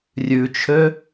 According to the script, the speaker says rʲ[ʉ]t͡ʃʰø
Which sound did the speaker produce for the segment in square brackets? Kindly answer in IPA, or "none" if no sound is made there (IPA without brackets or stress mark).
ʉ